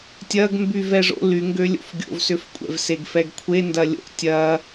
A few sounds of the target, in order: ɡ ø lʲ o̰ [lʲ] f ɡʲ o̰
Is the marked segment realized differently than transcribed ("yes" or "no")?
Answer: yes